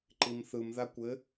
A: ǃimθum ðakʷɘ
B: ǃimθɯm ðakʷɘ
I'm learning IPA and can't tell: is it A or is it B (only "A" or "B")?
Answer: B